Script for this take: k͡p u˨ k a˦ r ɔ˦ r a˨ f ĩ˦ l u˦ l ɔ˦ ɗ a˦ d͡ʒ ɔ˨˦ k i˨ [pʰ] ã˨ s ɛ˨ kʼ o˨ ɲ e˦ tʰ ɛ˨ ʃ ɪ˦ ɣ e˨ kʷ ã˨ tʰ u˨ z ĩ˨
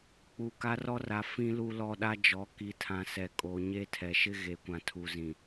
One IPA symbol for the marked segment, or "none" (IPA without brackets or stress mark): tʰ